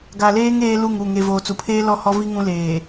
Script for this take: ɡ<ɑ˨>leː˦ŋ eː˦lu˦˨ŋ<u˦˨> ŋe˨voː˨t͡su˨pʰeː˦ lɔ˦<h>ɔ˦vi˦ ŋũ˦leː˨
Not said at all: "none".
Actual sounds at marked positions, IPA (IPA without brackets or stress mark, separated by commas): a˨, u˦˨, h